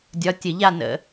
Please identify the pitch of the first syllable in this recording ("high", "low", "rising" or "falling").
rising